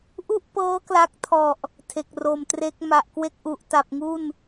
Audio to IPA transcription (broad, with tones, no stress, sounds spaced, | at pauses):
ʔ u˥˩ ʔ p ɤː˦˥ k l a˦˥ k̚ tʰ ɔ˨˩ ʔ | tʰ e˨˩ k̚ r o˨˩ m t r e˦˥ k̚ m a˨˩ ʔ k w e˥˩ k̚ ʔ u˨˩ ʔ t a˨˩ p̚ ŋ u˥˩ n